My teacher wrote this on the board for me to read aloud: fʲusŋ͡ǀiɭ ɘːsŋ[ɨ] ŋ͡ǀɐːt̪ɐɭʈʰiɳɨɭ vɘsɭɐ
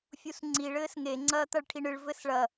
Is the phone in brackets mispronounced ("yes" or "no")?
yes